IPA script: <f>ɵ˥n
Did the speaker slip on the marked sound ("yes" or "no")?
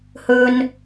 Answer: yes